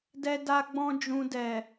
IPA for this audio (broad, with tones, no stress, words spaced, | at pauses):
dɛ˧da˧ɡ͡bɔ̃˧ d͡ʒũ˨dɛ˨